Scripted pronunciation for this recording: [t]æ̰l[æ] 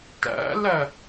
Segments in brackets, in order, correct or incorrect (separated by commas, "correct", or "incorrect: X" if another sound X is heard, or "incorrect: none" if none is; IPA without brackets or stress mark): correct, correct